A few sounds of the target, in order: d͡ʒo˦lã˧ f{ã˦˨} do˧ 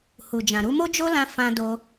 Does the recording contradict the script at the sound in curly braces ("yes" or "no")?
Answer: yes